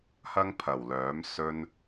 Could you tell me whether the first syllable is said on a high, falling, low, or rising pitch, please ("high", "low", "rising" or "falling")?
high